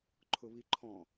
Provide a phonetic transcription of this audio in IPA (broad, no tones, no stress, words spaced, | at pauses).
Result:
ǃʰʊβiǃʰɔ̃